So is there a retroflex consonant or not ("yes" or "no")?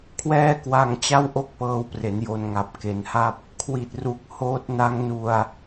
no